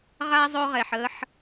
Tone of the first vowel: high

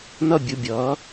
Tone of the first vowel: high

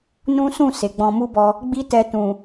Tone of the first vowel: high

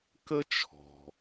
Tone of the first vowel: high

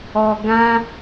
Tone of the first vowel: low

